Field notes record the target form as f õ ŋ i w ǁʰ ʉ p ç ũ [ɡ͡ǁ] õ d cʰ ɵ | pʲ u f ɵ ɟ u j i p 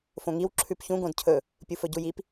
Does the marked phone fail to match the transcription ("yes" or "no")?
yes